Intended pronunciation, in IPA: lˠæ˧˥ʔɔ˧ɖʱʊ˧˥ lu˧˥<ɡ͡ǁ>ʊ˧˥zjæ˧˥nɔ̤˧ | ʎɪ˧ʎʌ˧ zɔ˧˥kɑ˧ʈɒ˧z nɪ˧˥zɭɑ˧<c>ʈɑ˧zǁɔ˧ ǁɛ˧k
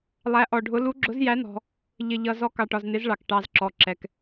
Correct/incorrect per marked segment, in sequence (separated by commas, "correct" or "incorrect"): correct, incorrect